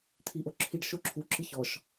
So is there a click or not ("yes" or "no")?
yes